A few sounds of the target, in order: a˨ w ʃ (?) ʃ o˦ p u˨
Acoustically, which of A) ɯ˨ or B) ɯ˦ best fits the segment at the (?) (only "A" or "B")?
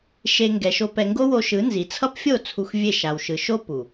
A